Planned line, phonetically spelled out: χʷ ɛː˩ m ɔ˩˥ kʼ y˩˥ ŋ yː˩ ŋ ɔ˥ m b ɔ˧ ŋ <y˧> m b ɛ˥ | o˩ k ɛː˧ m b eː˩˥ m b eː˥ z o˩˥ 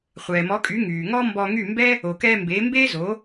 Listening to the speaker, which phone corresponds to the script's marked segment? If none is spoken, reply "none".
y˥˩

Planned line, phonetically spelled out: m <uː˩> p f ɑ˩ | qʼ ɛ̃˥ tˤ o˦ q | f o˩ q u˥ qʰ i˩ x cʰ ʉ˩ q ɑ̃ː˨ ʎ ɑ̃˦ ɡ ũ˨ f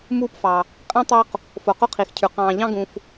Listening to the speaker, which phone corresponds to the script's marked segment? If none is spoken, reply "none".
uː˥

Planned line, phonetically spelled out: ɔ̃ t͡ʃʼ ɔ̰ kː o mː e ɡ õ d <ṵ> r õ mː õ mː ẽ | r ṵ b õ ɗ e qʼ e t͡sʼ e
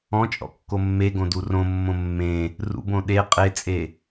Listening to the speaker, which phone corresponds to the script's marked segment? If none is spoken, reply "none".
u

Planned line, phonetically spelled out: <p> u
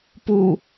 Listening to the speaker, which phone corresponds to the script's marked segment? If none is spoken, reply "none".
p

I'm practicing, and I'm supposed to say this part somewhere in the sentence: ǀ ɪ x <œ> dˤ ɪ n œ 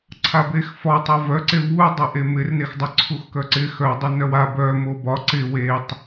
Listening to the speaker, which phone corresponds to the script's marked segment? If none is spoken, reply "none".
œ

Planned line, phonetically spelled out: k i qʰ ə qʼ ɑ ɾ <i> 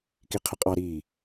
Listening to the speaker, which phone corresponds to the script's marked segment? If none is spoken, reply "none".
iː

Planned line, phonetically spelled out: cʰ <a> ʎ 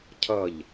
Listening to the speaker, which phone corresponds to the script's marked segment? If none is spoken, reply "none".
ɐ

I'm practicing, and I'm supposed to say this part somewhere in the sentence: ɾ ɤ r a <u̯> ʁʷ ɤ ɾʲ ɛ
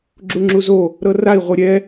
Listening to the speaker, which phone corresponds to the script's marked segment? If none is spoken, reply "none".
i̯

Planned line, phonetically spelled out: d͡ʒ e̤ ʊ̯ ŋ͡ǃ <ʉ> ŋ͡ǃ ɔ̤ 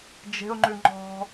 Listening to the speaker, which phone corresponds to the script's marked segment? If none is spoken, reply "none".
ʉ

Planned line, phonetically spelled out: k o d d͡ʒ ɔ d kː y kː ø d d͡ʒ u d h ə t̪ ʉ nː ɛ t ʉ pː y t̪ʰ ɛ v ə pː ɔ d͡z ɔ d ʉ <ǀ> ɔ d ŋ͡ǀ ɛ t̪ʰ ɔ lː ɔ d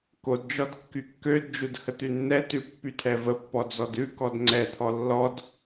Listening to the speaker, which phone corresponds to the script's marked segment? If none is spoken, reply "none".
k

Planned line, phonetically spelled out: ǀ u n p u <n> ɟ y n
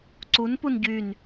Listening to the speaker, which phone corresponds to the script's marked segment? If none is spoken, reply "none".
n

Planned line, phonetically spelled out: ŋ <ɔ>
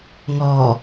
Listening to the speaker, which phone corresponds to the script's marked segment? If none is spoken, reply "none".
ɔ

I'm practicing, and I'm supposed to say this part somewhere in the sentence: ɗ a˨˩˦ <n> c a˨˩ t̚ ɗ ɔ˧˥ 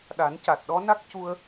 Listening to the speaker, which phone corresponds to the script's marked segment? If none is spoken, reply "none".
n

